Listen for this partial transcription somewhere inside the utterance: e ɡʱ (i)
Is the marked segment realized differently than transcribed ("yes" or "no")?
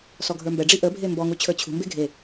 yes